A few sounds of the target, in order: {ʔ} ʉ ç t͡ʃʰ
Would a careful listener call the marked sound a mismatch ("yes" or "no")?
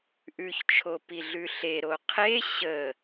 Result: no